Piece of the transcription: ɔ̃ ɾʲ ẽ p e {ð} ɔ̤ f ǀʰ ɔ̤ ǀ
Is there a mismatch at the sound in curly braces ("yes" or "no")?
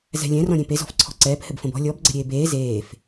yes